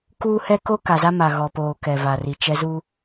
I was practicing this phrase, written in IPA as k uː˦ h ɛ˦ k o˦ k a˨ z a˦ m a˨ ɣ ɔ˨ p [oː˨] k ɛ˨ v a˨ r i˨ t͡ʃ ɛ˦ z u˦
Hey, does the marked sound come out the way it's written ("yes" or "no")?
yes